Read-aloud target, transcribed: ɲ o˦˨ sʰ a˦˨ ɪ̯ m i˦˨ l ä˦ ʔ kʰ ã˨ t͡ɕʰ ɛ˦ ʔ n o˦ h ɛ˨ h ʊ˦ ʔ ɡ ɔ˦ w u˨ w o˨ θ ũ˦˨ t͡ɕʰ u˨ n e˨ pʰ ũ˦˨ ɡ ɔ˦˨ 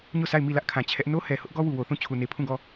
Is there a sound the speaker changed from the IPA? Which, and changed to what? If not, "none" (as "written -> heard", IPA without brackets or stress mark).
none